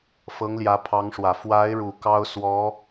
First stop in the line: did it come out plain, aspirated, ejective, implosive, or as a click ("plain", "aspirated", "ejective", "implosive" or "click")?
aspirated